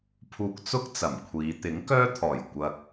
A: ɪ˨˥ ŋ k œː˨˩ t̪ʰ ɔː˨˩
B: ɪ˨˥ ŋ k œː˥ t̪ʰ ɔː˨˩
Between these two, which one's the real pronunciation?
B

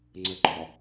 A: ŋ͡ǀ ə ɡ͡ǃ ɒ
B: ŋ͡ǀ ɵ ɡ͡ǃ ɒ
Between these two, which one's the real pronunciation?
A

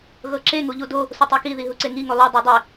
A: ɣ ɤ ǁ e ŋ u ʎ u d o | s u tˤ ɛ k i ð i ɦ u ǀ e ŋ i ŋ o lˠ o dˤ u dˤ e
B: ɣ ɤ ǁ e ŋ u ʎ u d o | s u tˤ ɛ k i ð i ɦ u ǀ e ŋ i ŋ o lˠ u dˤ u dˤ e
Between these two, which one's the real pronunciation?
B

